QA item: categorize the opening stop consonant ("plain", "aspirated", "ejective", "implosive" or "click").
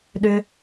implosive